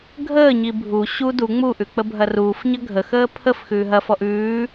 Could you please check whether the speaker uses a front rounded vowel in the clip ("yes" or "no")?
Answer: no